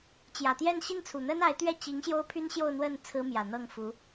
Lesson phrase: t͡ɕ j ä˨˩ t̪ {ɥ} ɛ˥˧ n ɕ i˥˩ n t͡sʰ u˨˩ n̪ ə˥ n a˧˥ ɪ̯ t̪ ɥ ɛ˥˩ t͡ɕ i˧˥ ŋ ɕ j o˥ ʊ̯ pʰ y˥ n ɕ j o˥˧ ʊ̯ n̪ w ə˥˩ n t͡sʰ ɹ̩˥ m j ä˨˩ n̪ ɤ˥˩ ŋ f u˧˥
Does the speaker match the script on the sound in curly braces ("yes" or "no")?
no